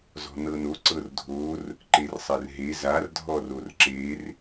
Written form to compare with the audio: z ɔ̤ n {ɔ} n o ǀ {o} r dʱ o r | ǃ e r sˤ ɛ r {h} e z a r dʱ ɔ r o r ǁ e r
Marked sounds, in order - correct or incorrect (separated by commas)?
incorrect, incorrect, incorrect